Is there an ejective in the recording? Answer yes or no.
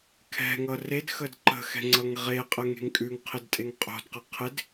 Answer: yes